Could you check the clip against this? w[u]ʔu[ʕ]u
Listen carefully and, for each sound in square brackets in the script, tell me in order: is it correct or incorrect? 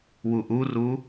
correct, incorrect: r

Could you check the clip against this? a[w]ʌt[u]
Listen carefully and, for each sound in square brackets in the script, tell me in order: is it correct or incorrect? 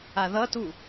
incorrect: ð, correct

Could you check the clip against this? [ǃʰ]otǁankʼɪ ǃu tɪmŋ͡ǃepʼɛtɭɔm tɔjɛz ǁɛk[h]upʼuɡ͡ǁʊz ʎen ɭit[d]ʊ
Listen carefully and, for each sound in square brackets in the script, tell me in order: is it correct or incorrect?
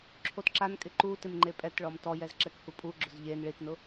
incorrect: ǁʰ, correct, incorrect: n

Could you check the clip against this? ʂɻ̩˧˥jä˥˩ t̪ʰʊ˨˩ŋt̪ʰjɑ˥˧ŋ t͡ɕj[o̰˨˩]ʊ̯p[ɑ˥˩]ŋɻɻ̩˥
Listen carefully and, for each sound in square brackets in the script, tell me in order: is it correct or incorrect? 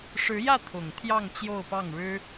incorrect: o˥˧, correct

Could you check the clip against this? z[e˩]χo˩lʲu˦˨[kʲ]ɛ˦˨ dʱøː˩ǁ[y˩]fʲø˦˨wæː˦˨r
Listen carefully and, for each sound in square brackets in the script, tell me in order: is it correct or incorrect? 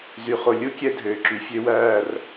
incorrect: y˩, correct, correct

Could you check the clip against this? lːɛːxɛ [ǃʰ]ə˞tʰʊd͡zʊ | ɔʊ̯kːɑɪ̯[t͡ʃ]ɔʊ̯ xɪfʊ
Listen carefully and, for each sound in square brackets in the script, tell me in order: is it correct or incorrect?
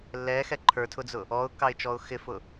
correct, correct

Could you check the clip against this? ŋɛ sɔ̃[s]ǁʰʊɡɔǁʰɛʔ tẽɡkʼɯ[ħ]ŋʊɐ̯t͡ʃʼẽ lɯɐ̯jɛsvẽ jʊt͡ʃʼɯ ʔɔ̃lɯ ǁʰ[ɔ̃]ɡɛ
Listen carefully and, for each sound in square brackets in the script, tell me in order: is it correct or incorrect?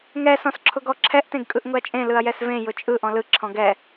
correct, incorrect: ʔ, correct

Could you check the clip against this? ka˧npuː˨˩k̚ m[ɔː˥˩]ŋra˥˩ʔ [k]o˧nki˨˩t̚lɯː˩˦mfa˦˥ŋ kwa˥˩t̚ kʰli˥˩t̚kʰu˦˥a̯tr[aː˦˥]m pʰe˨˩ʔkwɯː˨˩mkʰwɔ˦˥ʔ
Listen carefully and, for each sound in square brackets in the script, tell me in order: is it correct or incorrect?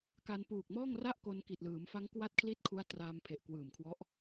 correct, correct, incorrect: aː˧

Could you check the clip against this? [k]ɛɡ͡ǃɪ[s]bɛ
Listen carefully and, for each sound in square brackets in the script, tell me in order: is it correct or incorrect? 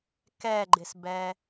correct, correct

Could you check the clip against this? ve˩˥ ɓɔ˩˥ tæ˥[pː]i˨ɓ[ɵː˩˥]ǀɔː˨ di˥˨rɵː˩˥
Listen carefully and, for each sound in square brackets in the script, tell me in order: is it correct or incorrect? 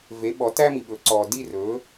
incorrect: m, correct

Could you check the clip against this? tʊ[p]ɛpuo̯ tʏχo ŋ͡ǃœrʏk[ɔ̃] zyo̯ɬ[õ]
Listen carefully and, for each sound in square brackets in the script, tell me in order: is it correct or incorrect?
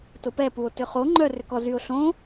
correct, incorrect: ɔ, correct

